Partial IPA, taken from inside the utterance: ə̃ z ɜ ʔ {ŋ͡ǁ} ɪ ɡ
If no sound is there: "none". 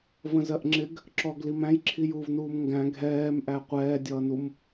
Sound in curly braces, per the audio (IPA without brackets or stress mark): ŋ͡ǁ